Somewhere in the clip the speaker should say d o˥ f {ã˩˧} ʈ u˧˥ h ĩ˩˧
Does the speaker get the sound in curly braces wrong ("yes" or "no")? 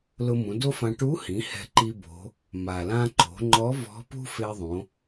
yes